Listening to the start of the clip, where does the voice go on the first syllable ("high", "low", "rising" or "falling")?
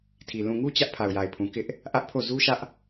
low